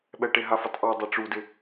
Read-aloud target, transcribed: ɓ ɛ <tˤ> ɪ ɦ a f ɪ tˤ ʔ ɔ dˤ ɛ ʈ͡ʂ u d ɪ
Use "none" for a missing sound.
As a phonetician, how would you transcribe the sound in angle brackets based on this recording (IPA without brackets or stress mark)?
ʈ